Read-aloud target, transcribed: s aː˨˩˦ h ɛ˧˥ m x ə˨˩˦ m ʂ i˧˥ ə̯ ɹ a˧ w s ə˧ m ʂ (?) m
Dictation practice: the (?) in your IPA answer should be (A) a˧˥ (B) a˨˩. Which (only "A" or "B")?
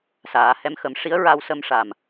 B